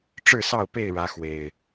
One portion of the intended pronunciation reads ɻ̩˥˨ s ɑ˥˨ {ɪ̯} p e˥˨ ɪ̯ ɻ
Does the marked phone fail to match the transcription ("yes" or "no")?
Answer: yes